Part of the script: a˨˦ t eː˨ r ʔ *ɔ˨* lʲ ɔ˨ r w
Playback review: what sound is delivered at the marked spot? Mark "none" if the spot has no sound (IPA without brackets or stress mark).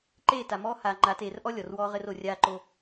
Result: ɔ˦